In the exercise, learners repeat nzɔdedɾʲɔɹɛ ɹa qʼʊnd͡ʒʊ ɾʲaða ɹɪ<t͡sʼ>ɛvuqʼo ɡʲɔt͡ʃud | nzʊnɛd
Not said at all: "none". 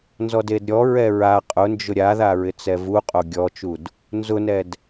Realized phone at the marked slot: t͡s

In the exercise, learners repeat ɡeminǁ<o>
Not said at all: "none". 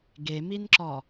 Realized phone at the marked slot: ɔ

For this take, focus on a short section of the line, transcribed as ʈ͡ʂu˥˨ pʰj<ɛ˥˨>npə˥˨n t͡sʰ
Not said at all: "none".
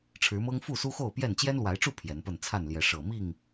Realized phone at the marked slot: ɛ˨˦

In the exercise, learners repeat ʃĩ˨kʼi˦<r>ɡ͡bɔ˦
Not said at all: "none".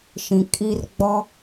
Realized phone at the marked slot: r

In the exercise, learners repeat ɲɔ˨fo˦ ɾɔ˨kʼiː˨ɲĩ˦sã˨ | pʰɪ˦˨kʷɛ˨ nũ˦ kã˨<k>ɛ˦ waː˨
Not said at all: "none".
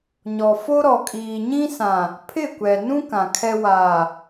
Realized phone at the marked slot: kʰ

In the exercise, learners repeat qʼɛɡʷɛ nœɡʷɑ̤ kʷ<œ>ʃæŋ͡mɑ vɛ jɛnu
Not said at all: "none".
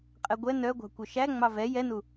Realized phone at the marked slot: œ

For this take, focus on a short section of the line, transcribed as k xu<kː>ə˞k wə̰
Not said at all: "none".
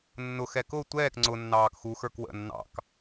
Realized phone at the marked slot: x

